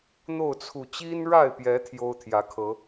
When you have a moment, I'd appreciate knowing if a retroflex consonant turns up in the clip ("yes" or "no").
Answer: yes